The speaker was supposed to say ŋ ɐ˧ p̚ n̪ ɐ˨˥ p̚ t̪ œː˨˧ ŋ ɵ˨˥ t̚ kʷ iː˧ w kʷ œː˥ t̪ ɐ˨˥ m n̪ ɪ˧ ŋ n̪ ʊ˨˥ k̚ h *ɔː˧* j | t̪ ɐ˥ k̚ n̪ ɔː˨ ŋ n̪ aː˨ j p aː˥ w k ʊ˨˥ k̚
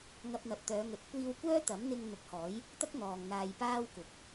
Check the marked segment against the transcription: incorrect: ɔː˨˥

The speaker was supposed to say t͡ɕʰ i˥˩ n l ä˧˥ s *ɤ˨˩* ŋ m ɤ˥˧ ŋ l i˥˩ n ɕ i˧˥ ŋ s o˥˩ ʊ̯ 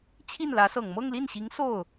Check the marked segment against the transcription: correct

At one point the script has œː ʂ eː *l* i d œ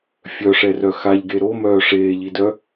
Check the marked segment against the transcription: incorrect: ʎ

